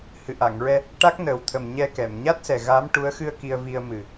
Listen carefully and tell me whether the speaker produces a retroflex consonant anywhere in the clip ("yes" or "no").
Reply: yes